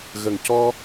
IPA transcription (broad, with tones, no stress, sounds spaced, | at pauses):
ɣ ə˨˩ ŋ c ɔ˧